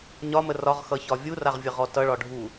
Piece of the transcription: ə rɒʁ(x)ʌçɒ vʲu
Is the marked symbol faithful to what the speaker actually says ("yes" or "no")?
yes